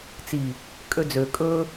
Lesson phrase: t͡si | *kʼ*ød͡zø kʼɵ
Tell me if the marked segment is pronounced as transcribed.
yes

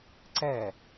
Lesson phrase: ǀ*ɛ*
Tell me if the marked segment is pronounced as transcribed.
yes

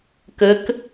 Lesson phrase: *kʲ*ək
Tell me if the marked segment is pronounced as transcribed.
no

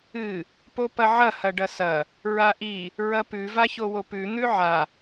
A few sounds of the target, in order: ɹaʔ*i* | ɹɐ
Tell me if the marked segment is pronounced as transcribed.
yes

